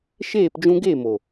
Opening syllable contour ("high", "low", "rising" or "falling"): falling